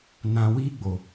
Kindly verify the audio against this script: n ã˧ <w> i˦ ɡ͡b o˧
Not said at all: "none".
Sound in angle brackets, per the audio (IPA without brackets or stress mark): w